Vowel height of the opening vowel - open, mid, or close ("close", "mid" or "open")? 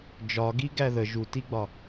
open